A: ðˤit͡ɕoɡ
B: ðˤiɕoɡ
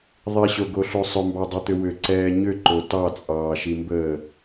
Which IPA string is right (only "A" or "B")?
B